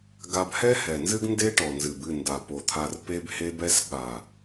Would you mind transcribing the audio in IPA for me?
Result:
ɡ a˧ b h ɛ˦ h ɛ˨ n z ɨ˦ ɡ n d e˦ ʈ ɔ˨ n z ɨ˨ b ɨ˦˨ n d a˨ p o˨ t̪ʰ a˧ r p e˦ b h e˦ b ɛ˦ s ɠ a˨

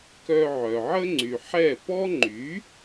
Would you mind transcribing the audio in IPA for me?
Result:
k œ˧ ʕ œ˩ ʕ ə˥ ŋ͡ǀ y˩ ħ ɛ˥˩ p ɔ˥ ŋ͡ǃ y˩˥

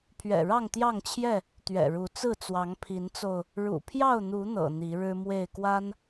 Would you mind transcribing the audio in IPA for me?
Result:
pʰ ɥ ɛ̰˨˩ ɻ ɑ˥˨ ŋ t̪ j ɑ˥˨ ŋ t͡ɕʰ j ɛ˥˨ | t̪ ɥ ɛ̰˨˩ ɻ u˨˦ t͡s ɹ̩˥˨ t͡s w ɑ˨˦ ŋ pʰ i˨˦ n t͡s o˧ ʊ̯ | ɻ ṵ˨˩ pʰ j ɑ˥˨ ʊ̯ n̪ u˨˦ n̪ ɤ̰˨˩ n̪ i˨˦ ɻ ɻ̩˦ m w e˥˨ ɪ̯ k w a˦ n

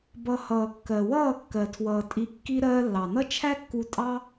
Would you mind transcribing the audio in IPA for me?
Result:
b ʌ˧ h ʌː˨ kː ɜ˨ w ʌː˦˨ kː ɜ˨ tʰ w ʌː˨ tʼ i˧ kː i˦ ɾ ɜː˧ lː ɑ˨ n ʌ˦ t͡ʃʰ æ˦ kː u˧ tʼ ɑ˦

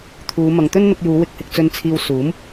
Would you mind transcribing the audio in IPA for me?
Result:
t̪ʰ uː˨˧ m ɐ˨ ŋ t̪ ɵ˥ n n̪ ʊ˧ k̚ j uː˨˧ w ɪ˨ k̚ h ɪ˨ k̚ t͡s ɵ˨ n t͡sʰ iː˨ w s uː˨˥ m

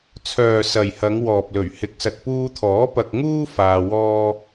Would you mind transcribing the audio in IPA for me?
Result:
t͡sʰ œː˨ s ɐ˨ j h ɐ˨˧ ŋ w ɔː˨ p̚ l ɵ˨˩ ɥ h ɪ˨˥ k̚ s ɐ˨ t̚ p uː˧ t̪ʰ ɔː˨˥ p ɐ˧ k̚ ŋ uː˥ f aː˧ w ɔː˥

